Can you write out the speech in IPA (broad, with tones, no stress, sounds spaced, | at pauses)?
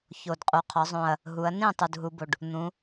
ç o˨˩ d qʼ u˩˧ qʰ ɒ˩˧ zˤ õ˨˩ ɐ̯ | ɦ u˩˧ ɐ̯ n ĩ˥˩ tˤ u˨˩ d ɦ u˩˧ b o˨˩ ɖ | n̪ ũ˩˧